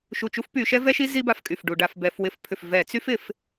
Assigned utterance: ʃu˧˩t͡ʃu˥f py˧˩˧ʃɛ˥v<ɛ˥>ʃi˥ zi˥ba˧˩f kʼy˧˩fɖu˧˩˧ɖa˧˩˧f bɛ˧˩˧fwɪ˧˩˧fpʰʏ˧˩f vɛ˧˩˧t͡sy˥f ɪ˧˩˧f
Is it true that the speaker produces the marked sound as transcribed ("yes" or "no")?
yes